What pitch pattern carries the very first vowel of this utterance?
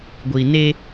low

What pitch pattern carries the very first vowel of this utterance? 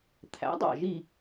rising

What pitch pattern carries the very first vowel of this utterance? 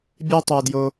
high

